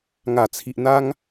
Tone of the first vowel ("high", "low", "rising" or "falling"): low